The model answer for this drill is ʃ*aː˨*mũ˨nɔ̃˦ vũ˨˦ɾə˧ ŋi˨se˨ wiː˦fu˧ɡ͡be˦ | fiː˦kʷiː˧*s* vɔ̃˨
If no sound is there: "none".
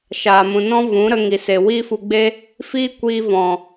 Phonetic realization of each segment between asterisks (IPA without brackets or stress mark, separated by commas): aː˨, none